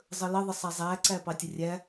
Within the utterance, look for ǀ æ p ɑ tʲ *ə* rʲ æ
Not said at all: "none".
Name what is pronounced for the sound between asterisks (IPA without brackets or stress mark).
ə